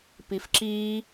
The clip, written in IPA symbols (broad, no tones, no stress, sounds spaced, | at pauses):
p i f ǁ i